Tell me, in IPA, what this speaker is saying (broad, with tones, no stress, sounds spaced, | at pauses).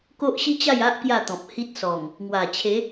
k o˦ ʔ ɕ i˦ t͡ɕ a˥˧ j a˦ ʔ k j a˥˧ t̪ ɔ̃˨ p̚ h i˦ t̚ s ɔ˨˩ ŋ | ŋ w a˨˩ t͡ɕʰ e˨˦